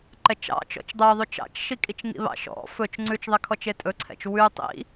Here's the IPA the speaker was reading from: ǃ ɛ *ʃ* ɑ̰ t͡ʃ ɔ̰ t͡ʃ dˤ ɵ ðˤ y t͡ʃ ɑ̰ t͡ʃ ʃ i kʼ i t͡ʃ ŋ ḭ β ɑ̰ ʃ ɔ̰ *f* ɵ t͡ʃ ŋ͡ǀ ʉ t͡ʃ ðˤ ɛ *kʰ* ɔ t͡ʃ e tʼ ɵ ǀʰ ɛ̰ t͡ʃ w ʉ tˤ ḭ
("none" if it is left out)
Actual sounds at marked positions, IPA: t͡ʃ, f, kʰ

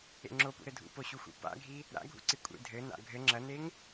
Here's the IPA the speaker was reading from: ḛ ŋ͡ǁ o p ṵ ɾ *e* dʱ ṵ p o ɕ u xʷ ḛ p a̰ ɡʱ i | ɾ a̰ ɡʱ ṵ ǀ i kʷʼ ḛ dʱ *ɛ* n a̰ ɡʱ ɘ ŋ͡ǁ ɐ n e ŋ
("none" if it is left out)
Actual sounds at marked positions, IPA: ɘ, ɘ

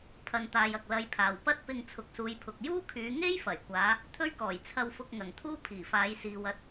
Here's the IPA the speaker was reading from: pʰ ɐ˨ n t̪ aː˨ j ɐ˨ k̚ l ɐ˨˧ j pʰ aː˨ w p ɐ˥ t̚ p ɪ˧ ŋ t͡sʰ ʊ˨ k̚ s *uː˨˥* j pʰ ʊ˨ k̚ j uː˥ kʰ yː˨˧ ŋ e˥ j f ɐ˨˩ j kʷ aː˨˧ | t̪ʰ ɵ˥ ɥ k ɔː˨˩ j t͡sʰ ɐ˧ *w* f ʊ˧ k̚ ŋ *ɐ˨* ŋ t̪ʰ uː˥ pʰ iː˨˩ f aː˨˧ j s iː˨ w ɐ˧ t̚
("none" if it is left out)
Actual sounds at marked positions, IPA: uː˨˧, w, ɐ˨˩

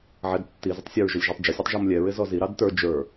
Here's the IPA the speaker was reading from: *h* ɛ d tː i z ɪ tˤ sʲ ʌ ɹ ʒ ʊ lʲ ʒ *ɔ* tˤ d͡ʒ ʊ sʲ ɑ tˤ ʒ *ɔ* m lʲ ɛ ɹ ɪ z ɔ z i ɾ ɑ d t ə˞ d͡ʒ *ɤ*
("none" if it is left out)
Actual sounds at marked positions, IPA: ʕ, ɔ, ɔ, ə˞

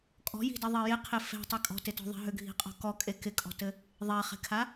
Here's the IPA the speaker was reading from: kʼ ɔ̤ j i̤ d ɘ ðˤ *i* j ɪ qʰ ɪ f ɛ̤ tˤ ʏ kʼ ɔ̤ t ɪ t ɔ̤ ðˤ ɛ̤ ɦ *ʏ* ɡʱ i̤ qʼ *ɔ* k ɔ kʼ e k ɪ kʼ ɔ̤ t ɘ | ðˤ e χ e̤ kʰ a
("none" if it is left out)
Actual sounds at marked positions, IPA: i, ʏ, ɔ̤

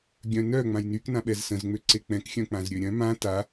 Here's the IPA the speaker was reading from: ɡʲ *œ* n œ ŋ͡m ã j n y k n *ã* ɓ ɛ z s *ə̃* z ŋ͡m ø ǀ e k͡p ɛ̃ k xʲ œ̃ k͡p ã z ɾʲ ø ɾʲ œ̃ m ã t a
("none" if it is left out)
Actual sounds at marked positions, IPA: œ̃, ã, ə̃

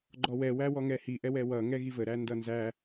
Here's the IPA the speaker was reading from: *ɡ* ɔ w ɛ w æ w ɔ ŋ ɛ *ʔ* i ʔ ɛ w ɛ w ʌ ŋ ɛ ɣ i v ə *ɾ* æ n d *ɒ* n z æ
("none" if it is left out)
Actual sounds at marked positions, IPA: ɡ͡ǃ, h, ɾ, ʌ

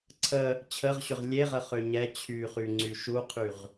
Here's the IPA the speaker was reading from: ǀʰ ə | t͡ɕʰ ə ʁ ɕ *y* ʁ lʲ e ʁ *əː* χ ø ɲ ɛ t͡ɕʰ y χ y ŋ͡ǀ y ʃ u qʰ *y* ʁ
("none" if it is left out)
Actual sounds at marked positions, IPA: ʏ, ə, y

